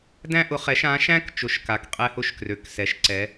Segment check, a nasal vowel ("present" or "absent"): present